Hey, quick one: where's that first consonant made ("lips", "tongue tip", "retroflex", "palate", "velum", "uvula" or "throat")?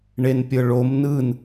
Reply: retroflex